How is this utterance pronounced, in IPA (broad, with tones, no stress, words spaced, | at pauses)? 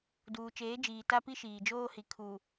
duː˨t͡ʃeː˨˦ d͡ʒiː˨ta˦pi˦ ʃiː˨d͡ʒoː˦hi˨ kʰu˨